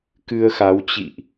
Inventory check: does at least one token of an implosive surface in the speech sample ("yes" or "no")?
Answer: no